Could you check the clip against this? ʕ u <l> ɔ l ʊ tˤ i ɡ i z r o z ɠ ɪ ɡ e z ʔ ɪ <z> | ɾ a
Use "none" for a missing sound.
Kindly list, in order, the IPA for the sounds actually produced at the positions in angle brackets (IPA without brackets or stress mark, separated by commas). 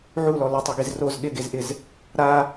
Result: l, z